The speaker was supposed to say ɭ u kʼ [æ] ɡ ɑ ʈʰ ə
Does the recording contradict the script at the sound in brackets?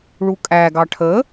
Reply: no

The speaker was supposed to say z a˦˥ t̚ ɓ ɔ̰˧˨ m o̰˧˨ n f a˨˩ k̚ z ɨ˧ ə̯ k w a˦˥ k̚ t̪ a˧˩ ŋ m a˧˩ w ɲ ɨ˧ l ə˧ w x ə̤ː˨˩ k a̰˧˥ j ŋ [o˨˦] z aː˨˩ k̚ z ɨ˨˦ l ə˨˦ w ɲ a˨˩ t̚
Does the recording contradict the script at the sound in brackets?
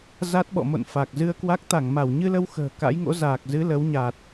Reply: yes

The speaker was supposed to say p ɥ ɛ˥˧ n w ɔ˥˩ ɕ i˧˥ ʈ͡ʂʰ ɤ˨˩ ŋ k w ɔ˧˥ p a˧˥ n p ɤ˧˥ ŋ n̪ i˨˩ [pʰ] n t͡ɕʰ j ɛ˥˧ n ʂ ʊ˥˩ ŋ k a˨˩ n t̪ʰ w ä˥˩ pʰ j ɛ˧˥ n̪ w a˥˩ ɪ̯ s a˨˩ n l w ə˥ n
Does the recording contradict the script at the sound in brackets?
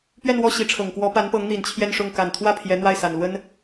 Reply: yes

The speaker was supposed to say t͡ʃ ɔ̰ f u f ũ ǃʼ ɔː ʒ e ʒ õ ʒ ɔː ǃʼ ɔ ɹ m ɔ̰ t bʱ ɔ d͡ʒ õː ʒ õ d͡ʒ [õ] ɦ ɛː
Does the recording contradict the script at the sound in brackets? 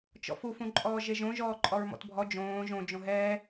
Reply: no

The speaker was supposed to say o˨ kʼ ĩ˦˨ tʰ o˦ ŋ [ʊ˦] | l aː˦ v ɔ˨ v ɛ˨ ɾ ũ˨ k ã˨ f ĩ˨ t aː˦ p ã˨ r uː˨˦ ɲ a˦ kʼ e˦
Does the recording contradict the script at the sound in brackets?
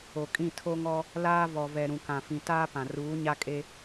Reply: yes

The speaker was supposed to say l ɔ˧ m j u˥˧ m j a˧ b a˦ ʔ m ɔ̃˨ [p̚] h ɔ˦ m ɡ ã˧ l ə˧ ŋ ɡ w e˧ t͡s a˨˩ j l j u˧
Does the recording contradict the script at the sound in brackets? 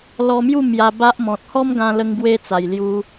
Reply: yes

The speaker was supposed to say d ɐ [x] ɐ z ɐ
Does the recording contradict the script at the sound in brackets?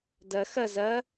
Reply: no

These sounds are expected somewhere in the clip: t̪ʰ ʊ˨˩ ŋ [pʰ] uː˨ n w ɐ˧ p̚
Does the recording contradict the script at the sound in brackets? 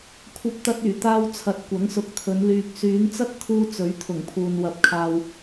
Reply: no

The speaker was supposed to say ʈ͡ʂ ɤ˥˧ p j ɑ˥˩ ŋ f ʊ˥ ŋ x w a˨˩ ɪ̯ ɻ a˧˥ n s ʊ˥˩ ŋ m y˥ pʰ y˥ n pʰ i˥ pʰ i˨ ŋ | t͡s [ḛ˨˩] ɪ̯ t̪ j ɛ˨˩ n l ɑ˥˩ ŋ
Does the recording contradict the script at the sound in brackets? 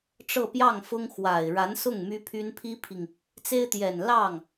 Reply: yes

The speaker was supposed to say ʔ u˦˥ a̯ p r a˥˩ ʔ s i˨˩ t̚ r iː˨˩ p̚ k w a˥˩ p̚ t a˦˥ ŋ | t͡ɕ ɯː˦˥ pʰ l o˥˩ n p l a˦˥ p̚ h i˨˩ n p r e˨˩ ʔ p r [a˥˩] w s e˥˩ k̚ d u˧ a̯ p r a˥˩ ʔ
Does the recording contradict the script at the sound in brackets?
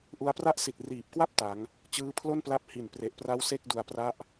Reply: yes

